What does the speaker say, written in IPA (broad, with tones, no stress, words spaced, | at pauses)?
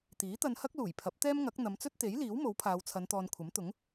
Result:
t̪iː˨˥t̪ɐ˧nhɐ˥k̚ luː˨˩jpʰɐ˨˥p̚t̪ɛː˥mŋɐ˨˥k̚ n̪ɐ˨˧mt͡sɵ˥t̚t̪e˨˥jliː˨˥w mo˨˥wpʰaː˨˧wt͡sʰɐ˨˧nt̪ɔː˨n kʷʰɐ˨˥mt̪ʊ˨˥ŋ